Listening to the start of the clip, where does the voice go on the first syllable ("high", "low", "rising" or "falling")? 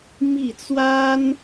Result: falling